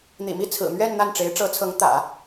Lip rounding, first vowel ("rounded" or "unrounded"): unrounded